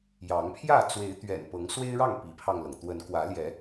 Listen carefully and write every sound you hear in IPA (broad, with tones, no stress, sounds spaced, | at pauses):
j ɑ˨˦ ŋ pʰ j ä˥˨ t͡s w e˨˦ ɪ̯ t̪ ɥ ɛ̰˨˩ n p ɤ˨˦ ŋ s w e˦ ɪ̯ ɻ ɑ˥˨ ŋ p i˨˦ pʰ ɑ˧ ŋ l ɤ˩ ŋ t̪ w ə˨˦ n k w ä˨˦ l j ɛ˨˦